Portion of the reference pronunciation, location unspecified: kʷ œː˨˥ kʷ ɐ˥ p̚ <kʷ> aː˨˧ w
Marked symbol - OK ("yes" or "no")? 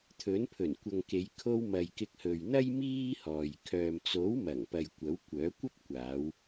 yes